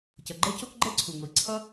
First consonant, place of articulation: palatal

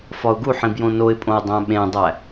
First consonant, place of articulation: labial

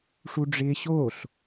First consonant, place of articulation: retroflex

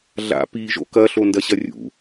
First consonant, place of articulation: alveolar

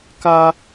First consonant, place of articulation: velar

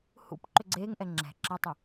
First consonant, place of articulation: glottal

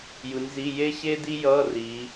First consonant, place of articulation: palatal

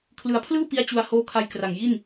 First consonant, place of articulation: velar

